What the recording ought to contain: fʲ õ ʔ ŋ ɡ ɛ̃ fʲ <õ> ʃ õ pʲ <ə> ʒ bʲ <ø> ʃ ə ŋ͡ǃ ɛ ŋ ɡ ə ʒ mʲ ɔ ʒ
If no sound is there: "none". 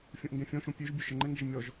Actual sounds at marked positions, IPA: ɔ̃, ø, ø

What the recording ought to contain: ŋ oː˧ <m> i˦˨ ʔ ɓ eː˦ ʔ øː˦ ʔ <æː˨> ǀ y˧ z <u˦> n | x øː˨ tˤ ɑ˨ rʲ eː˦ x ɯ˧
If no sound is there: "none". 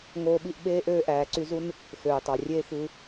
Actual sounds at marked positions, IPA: ɓ, æː˨, u˦

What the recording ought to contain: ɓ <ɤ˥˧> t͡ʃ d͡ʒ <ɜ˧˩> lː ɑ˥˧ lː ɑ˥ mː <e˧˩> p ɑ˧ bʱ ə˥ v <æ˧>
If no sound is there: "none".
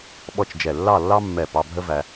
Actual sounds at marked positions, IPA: ɔ˥˧, ɛ˧˩, ɛ˧˩, æ˧

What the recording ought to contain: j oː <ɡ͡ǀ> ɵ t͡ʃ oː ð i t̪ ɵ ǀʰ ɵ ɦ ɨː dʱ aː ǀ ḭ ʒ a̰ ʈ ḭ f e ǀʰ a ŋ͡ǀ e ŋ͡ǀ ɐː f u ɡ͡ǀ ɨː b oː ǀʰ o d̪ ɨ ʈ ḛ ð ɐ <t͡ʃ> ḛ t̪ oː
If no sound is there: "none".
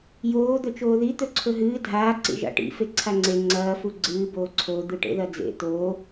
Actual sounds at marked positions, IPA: d̪, d͡z

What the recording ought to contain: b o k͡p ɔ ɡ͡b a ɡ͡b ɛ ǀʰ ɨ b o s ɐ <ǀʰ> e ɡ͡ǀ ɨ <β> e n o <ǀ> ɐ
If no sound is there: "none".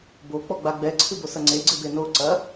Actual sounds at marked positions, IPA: ŋ͡ǀ, b, ǀ

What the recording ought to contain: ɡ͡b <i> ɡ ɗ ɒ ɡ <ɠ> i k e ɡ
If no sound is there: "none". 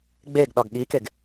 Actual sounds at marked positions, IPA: e, ɠ

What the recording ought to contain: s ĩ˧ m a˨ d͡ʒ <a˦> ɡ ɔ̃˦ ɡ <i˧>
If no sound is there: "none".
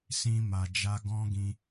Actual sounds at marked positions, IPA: a˧, ĩ˧

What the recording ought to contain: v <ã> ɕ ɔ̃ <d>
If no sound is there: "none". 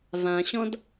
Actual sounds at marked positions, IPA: ã, d

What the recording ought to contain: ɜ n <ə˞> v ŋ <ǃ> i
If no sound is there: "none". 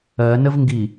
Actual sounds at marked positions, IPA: ə, ɡ

